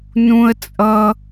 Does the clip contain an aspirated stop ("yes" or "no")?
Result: no